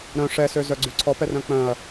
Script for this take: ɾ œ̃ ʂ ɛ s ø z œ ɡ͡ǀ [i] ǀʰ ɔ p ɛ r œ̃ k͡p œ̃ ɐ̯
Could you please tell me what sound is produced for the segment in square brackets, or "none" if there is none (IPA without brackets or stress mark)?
y